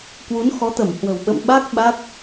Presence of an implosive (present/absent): present